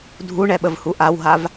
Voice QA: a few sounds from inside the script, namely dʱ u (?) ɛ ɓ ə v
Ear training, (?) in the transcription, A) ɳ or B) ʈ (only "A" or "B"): A